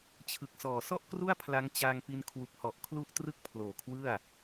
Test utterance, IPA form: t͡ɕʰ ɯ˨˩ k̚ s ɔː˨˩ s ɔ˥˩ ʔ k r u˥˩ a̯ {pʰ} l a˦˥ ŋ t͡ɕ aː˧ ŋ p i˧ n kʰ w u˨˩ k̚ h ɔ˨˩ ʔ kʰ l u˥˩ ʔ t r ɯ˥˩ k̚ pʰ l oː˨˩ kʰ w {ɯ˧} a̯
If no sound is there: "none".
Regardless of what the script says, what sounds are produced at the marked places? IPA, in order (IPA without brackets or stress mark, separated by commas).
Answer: pʰ, ɯ˥˩